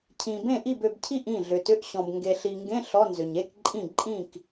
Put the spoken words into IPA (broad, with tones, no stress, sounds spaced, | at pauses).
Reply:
cʰ ĩ˨ b ẽ˥˩ ʔ i˥˩ b ø˨ b cʰ i˥˩ ʔ ĩ˥˩ ɮ ʏ˨ t ʏ˧˥˧ ʔ ɕ ɔ̃˨ b ŋ ɡ e˨ ɬ i˨ ŋ ɡ ẽ˧˥˧ ɬ ɔ˧˥˧ n z ʏ˨ ɲ e˧˥˧ k ǃʼ ĩ˥˩ ǃʼ ĩ˥˩ k